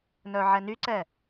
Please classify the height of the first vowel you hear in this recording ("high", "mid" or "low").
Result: mid